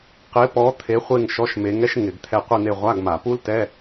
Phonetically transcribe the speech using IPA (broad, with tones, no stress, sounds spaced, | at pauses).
q ɪ˨˥ p ɔ˨˥ t̪ʰ e˨˥ χʷ e˦˨ ŋ ʃ ɔ˧˥˧ ʃ m e˨˥ ŋ ɛ˥ ʃ ŋ ɪ˧˩˧ ɡ t̪ʰ ɛ˦˨ qʷ i˦˨ n̪ e˦˨ ʁʷ a˧˥˧ ɡ m a˧˩˧ p u˥ l t ɛ˧˥˧